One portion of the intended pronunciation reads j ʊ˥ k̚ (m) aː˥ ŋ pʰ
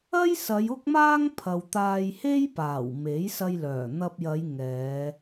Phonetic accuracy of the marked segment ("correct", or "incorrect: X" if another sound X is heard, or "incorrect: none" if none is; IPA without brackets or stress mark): correct